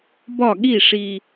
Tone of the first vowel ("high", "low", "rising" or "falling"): falling